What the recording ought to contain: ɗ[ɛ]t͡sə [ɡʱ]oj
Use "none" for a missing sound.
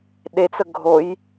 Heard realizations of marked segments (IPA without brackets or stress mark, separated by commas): e, ɡʱ